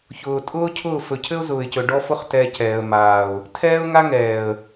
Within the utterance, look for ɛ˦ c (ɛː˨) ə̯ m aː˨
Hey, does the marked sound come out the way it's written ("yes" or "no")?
yes